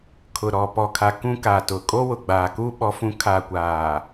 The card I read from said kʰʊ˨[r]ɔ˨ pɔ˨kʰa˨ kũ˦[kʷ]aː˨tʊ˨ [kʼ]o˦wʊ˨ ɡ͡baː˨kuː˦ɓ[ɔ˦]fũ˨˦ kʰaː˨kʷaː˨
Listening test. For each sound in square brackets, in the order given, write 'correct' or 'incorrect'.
incorrect, incorrect, correct, incorrect

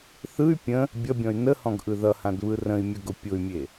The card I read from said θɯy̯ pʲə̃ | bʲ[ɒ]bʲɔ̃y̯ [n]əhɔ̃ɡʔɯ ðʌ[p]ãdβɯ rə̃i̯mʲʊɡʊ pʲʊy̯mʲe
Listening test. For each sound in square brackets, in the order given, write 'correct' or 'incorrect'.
incorrect, correct, incorrect

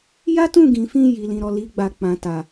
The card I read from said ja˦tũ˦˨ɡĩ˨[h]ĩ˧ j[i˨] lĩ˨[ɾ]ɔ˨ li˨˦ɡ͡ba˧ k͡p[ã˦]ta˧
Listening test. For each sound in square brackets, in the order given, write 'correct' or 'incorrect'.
incorrect, correct, correct, correct

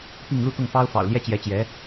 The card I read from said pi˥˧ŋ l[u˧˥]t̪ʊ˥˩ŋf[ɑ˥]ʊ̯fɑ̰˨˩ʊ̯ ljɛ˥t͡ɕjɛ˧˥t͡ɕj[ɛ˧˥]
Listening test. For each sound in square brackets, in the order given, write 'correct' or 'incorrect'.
incorrect, correct, correct

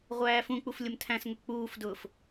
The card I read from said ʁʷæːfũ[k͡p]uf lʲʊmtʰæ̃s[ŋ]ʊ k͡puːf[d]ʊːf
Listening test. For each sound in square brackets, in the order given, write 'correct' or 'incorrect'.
correct, correct, correct

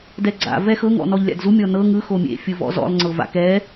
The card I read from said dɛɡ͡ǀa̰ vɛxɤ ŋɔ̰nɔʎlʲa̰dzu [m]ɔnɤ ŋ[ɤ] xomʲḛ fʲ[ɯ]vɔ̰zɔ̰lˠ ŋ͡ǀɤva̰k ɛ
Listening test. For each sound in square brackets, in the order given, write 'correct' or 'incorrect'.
incorrect, incorrect, correct

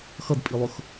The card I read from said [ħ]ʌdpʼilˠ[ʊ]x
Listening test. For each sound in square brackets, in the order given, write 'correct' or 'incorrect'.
incorrect, correct

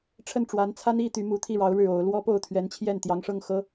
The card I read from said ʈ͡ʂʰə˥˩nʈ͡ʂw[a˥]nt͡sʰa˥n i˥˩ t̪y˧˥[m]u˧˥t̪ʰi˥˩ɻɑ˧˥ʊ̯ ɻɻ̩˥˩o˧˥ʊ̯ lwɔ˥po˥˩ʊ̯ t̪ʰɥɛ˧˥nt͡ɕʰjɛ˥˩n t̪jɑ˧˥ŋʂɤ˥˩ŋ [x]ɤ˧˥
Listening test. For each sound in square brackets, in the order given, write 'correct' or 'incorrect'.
incorrect, correct, correct

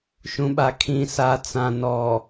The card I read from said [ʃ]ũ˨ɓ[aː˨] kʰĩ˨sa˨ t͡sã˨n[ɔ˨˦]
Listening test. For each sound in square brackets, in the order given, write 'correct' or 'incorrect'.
correct, incorrect, incorrect

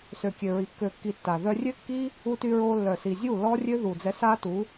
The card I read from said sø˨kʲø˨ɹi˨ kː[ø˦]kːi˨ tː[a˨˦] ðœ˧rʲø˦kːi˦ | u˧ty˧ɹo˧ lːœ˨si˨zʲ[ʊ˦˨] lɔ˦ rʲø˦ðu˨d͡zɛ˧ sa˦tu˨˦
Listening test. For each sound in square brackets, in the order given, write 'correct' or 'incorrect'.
incorrect, incorrect, incorrect

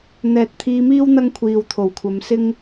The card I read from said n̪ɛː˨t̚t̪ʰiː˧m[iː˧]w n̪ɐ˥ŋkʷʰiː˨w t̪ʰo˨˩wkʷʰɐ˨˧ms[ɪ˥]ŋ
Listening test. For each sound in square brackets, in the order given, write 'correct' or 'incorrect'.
incorrect, correct

